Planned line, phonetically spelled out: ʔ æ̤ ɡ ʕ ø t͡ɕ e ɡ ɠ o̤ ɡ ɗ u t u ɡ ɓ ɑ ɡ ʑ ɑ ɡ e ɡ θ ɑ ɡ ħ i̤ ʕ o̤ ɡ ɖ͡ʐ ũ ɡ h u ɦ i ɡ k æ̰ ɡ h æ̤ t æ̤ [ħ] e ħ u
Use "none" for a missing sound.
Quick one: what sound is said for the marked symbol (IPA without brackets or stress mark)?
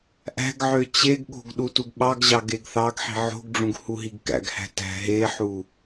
ɦ